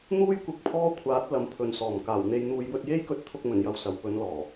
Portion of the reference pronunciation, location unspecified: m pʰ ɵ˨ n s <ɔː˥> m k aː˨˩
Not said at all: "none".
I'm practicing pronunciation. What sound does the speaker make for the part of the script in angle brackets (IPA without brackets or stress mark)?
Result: ɔː˨˩